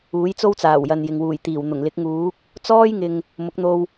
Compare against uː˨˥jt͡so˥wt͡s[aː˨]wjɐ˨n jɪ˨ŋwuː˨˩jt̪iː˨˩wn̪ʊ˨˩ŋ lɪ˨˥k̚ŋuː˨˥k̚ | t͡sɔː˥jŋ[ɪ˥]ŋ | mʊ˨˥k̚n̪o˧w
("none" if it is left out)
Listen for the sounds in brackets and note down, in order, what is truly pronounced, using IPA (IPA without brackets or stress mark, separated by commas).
aː˨˩, ɪ˨